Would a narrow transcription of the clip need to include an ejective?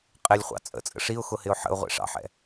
yes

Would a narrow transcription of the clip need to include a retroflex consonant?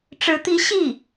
yes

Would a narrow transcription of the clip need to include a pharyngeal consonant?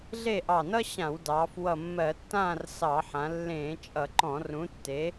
yes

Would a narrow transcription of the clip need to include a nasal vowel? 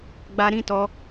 yes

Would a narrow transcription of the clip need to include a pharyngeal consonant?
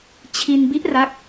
no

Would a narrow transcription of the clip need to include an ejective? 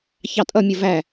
yes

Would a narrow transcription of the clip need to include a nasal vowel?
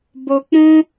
yes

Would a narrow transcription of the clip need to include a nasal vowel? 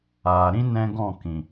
yes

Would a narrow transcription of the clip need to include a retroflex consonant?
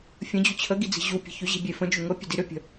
no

